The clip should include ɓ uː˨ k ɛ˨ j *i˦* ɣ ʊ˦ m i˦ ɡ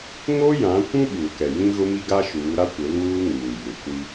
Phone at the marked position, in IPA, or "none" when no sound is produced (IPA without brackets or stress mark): ĩ˦